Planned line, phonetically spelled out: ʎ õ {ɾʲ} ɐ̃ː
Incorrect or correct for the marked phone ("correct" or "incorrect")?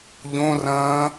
incorrect